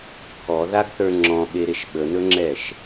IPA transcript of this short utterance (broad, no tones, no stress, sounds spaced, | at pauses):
pʰ ɔ ð a ɡ θ ə˞ ŋ͡ǁ ɔ̃ ɓ e ɾ e ʃ ɓ ə n ɵ ŋ͡ǁ ɛ ʃ